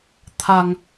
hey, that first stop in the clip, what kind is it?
aspirated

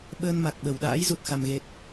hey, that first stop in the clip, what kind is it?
implosive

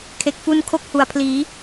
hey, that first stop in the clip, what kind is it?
aspirated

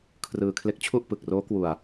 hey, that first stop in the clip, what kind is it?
aspirated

